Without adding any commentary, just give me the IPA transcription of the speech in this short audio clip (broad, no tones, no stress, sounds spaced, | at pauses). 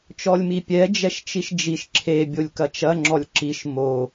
t͡ʃ ɔ lʲ m i pʲ ɛ d͡ʒ ɛ ʃ t͡ʃ i ʃ d͡ʒ i ʃ ǁʰ e bʲ o lʲ k ɐ t͡ʃ ɐ ŋ͡ǁ ɔ lʲ ǁ i ʃ m o